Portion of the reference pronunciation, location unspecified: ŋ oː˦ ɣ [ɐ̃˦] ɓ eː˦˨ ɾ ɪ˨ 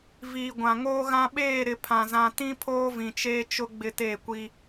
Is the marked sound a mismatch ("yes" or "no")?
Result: yes